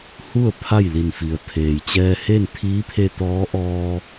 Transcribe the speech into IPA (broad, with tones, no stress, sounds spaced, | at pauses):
h u˥˨ ə̯ pʰ a˥˨ j l i˧˩ n f i˩ ə̯ t̪ʰ eː˩ j t͡ɕ ɛː˧ h e˥˨ n t̪ʰ iː˧˥ pʰ e˧ t̪ ɔː˧˥ ʔ ɔː˧